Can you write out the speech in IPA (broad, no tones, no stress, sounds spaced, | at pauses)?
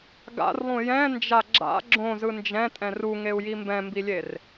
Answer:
ɡ a̰ r lˠ ũ j ɛ̃ n d͡ʒ a ɡ͡ǁ a̰ ɡ͡ǁ õ z ɯ n d͡ʒ ɛ̃ tʼ ɛ̃ r u ŋ e u̯ j i m b ɛ̃ m b i lʲ e r